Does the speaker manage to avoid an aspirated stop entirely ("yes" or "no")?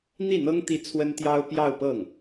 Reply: no